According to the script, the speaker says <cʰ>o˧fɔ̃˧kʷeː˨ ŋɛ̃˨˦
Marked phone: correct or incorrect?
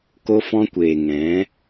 incorrect: k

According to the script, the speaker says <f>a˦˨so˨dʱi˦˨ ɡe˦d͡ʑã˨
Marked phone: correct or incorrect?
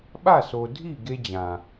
incorrect: ɓ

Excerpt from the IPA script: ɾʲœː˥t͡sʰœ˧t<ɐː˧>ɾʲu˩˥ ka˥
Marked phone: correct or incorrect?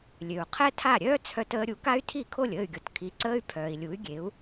incorrect: əː˧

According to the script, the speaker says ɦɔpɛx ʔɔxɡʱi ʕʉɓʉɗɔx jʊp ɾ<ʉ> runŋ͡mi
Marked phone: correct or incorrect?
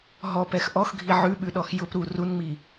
incorrect: u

